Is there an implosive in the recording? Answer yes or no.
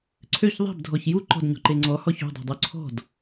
no